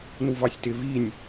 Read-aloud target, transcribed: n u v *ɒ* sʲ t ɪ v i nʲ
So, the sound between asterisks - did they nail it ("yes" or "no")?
no